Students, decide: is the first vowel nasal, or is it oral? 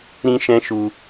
nasal